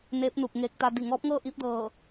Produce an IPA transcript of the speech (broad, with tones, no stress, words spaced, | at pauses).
neː˧˥p̚nuː˧˩k̚ ŋeː˧k̚t̪a˧ di˧˩ŋɔː˧˥p̚ŋɤː˥˨ ʔiː˧˥p̚dɤː˧˩